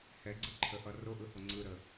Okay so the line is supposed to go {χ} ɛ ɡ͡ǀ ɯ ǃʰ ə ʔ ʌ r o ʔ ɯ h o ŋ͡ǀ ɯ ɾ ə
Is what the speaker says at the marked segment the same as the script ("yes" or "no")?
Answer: no